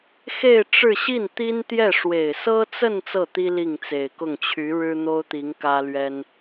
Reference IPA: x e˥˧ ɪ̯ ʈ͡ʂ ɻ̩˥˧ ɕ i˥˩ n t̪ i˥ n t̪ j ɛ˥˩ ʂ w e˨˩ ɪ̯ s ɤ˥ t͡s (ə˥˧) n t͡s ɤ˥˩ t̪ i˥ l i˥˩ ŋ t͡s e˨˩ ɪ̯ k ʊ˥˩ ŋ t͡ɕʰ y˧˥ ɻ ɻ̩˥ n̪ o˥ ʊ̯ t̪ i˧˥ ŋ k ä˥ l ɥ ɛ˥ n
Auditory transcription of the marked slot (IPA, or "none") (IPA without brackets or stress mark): ə˥˧